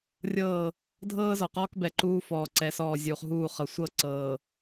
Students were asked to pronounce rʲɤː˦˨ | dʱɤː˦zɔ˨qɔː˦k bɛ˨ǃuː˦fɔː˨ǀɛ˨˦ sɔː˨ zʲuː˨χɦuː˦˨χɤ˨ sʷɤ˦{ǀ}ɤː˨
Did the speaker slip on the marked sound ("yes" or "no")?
no